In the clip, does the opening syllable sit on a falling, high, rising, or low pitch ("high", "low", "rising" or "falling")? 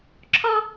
high